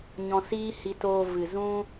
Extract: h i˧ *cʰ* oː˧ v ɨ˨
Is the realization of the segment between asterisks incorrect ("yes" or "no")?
yes